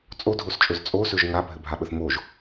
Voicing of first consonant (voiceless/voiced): voiceless